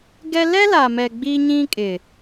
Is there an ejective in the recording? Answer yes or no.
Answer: yes